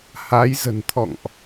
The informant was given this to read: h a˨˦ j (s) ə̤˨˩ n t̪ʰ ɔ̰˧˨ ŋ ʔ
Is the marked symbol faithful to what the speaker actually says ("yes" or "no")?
no